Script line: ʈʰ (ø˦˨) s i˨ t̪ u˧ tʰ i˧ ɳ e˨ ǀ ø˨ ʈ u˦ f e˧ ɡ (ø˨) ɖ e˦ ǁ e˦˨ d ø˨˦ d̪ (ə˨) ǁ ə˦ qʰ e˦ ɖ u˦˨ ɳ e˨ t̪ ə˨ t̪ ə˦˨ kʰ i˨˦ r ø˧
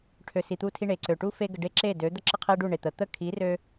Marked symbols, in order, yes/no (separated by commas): no, no, no